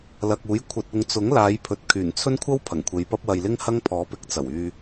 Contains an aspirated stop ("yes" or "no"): yes